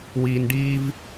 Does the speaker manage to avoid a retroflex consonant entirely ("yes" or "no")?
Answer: no